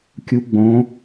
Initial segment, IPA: kʲ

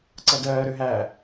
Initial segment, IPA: ǀ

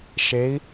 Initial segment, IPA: ʃ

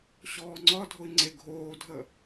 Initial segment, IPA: ɕ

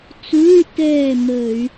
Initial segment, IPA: t͡s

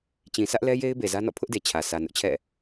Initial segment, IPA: t͡ɕ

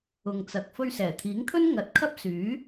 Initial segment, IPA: ʊ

